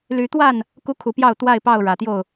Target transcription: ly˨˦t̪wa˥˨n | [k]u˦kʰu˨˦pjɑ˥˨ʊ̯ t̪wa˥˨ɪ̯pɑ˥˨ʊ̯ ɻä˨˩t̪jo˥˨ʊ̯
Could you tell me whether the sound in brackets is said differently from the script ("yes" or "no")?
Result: no